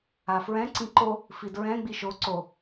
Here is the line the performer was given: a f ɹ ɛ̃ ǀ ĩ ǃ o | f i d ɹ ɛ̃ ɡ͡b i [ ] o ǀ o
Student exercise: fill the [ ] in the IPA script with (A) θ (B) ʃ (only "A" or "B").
B